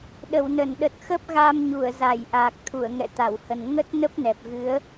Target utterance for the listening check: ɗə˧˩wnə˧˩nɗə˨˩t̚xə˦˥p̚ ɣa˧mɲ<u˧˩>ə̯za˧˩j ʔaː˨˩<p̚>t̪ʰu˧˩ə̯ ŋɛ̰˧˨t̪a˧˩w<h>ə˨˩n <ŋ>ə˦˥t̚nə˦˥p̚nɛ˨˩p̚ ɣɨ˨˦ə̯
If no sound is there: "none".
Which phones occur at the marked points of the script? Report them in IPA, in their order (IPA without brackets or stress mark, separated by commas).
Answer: u˧˩, k̚, h, ŋ